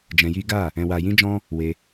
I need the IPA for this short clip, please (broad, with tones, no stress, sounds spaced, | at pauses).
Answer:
d͡ʒ ɛ̃˧ j i˦ ɡ a˦˨ | ɛ̃˨ w a˨ j ĩ˧ d͡ʒ ɔ̃˧ | w e˧